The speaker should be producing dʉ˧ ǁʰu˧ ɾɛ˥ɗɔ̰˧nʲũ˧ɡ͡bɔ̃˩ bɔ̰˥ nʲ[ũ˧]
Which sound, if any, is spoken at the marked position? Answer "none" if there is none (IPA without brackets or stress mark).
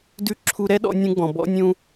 ũ˧